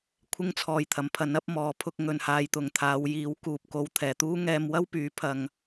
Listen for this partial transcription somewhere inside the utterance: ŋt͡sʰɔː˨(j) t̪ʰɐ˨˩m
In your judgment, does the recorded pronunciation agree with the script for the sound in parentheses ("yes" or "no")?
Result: yes